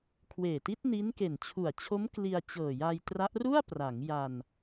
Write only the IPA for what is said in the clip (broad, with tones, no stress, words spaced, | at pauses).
kʰweː˨˩ti˦˥t̚ ni˦˥nke˨˩n t͡ɕʰu˨˩a̯t͡ɕʰo˦˥m kli˧a̯ t͡ɕɤː˨˩ja˧jtra˦˥ʔ ru˥˩a̯pra˩˦ŋ ja˧n